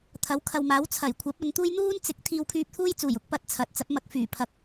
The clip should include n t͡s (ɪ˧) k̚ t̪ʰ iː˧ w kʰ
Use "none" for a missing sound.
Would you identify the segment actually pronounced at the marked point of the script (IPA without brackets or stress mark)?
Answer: ɪ˨˥